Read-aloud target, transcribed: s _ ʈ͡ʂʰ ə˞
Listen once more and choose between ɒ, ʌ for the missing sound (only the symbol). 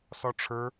ɒ